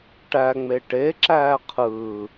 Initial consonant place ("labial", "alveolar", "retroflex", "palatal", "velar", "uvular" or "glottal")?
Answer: retroflex